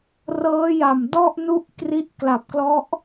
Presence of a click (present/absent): absent